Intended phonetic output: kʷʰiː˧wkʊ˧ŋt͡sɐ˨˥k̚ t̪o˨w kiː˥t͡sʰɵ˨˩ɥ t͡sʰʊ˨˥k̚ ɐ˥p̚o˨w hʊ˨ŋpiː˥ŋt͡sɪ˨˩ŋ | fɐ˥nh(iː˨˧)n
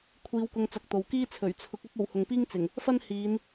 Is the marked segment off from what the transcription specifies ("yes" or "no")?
no